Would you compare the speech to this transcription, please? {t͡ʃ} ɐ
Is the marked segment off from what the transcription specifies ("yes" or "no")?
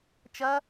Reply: no